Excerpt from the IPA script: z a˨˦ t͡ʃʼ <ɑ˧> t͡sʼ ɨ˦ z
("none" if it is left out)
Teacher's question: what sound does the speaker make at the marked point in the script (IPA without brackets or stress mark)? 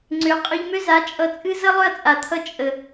ʌ˧